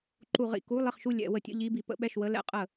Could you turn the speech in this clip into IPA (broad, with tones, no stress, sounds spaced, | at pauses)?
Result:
ǃ u˧˩˧ ʁ ḭ˥˩ k u˧˥˧ lˠ i˥˩ χ ʃ u˥˩ lʲ ɛ̰˧˩˧ w ə˧˩˧ tʲ ə̰˧˥˧ ʎ i˧˥˧ b i˧˩˧ p ə̰˧˥˧ ɓ ɛ˥˩ ʃ w ə˧˥˧ l ɛ̰˧˥˧ qʼ ə˧˩˧